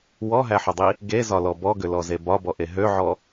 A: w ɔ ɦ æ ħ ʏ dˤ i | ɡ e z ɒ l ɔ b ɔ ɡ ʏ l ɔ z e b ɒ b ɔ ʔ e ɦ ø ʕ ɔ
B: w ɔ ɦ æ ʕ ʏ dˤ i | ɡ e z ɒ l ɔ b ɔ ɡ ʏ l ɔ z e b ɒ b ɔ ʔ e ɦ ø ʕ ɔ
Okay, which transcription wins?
A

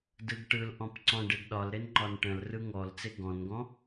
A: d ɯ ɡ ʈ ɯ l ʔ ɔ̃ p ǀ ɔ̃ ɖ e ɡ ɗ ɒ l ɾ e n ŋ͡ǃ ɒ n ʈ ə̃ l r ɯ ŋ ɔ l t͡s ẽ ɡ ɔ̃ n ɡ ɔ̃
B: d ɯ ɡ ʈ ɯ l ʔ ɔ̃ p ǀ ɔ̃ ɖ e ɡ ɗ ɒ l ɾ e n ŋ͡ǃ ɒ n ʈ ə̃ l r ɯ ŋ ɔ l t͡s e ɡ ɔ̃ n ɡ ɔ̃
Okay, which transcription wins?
B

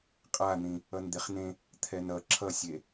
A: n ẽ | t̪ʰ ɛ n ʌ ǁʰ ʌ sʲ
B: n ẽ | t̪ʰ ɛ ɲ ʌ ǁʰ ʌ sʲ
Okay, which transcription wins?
A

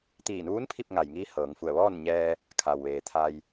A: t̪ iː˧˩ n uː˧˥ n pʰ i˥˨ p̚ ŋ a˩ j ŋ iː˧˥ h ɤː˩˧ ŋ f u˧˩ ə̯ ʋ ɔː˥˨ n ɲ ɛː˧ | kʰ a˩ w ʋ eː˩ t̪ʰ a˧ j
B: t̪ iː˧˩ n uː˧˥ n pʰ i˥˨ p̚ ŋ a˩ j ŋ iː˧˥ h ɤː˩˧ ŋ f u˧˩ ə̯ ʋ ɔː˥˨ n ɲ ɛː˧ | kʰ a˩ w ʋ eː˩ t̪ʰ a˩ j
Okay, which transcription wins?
A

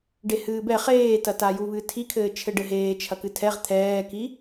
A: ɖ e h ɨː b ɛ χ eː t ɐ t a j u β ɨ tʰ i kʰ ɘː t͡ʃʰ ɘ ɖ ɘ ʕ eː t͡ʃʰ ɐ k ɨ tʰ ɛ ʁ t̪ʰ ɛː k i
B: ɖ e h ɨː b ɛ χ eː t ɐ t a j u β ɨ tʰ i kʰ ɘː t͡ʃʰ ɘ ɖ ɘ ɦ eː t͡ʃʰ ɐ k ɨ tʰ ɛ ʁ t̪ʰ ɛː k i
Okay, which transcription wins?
B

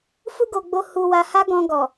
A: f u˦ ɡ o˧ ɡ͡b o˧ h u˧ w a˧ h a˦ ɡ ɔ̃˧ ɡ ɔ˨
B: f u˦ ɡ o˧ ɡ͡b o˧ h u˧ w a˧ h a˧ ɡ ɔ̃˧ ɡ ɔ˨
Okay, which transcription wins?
A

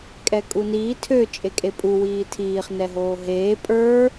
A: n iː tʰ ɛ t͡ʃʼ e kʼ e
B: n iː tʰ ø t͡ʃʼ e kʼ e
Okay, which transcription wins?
B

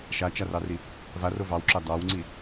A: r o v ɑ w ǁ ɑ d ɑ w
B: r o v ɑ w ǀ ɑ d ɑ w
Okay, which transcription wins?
A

